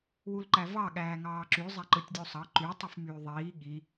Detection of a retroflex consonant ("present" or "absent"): absent